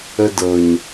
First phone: ə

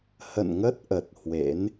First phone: h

